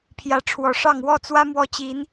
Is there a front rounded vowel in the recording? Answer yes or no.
no